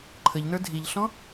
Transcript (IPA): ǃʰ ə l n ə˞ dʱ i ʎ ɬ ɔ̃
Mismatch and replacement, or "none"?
l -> ʎ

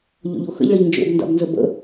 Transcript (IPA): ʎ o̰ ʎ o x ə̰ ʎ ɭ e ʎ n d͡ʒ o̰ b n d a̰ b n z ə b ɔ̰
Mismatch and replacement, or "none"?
ɔ̰ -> ə̰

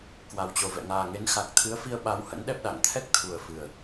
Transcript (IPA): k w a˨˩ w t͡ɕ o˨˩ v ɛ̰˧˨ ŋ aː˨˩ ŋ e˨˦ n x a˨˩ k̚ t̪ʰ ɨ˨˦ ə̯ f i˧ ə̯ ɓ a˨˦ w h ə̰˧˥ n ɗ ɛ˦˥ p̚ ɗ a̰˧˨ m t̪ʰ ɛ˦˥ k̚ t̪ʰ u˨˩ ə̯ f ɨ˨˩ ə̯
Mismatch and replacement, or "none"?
m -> ŋ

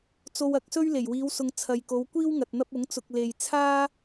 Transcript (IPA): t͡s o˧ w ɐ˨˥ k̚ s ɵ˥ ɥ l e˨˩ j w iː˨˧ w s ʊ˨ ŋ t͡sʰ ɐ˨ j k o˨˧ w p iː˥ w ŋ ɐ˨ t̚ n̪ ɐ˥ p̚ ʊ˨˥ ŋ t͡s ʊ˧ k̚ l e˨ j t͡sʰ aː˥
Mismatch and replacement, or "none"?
p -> kʷ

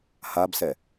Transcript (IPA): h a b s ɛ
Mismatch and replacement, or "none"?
none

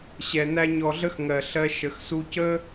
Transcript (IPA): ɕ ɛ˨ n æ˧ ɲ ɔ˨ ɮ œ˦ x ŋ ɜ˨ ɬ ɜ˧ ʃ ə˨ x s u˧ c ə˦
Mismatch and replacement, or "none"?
œ˦ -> ə˦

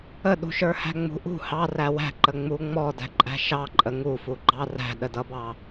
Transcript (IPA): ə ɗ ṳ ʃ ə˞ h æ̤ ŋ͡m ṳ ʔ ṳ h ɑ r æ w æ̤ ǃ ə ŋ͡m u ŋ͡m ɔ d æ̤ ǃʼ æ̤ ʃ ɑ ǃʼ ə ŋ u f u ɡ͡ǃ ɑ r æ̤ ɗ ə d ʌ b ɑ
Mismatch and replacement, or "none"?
none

